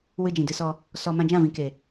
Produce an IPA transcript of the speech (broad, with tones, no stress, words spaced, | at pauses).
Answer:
wɨ˧ d͡ʒĩ˨dɨ˧sɔ˧ | sɔ˧ mã˧d͡ʒã˦˨vĩ˨ke˨